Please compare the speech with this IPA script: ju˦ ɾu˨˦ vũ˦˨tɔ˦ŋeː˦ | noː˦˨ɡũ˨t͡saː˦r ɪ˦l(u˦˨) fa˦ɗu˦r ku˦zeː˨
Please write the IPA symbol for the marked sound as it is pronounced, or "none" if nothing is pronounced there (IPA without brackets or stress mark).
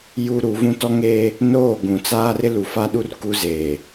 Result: u˨